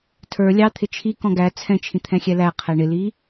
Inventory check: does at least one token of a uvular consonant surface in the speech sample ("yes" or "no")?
yes